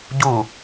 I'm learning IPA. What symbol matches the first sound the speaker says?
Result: ɟ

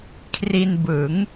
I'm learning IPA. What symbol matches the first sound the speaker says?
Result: kʰ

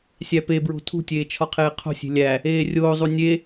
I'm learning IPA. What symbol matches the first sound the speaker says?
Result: sʲ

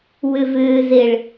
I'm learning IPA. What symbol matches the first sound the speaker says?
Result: w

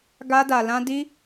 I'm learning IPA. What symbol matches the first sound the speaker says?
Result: ɡ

